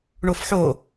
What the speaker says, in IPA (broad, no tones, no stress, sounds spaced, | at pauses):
ɳ o f ħ o